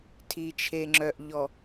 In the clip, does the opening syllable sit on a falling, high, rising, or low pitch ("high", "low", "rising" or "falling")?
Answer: low